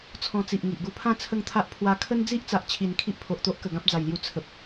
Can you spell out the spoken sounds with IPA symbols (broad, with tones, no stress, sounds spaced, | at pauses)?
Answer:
t͡sʰ ɔ̃˧ t͡s i˨ ʔ ŋ i˨ ʔ ɡ u˧ pʰ ã˥˧ t͡sʰ ə˥˧ ŋ t̪ʰ a˦ ʔ pʰ w a˧ kʰ ə˦ n d͡z i˦ ʔ t͡s a˨ ʔ t͡ɕʰ i˨˩ n kʰ i˦ ʔ pʰ o˨ ʔ t̪ o˦ ʔ k ə˨˩ ɡ ã˦ p̚ d͡z a˨˩ j l j u˧ t͡sʰ ə˨ p̚